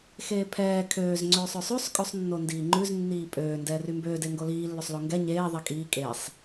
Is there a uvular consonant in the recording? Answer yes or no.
no